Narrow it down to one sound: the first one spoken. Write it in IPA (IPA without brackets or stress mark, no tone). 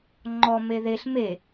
ŋ͡ǃ